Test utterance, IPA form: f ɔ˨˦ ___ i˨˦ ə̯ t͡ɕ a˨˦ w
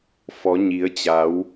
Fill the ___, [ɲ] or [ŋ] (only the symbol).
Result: ɲ